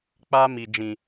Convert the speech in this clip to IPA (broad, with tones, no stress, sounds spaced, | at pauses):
k͡p a˦ m i˨ d͡ʒ ĩ˨